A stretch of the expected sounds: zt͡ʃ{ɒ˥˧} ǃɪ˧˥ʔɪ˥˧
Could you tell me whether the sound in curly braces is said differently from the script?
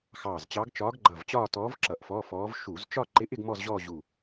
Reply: no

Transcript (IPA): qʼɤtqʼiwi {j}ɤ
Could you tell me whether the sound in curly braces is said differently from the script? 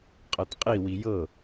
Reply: no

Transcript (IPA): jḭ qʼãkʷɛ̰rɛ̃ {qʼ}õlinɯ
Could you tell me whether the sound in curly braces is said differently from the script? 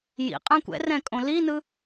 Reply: yes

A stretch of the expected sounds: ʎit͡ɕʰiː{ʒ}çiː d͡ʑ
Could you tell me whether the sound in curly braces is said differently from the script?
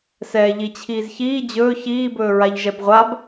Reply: yes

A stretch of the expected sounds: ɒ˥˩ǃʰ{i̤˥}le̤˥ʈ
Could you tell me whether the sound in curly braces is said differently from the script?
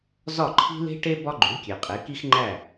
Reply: no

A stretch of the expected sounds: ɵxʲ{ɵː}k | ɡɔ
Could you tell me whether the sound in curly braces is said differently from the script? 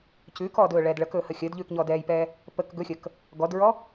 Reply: yes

